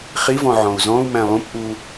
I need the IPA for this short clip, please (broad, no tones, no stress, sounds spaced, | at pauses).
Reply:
χ i v ɔ̃ ʕ ɔ̃ u̯ z ɔ̃ u̯ m æ̃ lˠ ũ p ʔ u